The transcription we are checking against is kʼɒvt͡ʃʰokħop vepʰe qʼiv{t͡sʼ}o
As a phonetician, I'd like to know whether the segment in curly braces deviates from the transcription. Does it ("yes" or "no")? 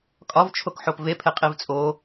no